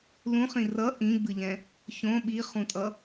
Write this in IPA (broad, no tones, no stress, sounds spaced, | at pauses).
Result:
l ũ χ ĩ r ʌ ʔ ĩ ɡ͡b ɯ ʎ ɛ̃ | ç õ ɓ i χ ũ tʼ ʌ